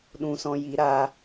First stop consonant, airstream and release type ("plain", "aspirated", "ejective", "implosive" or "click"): implosive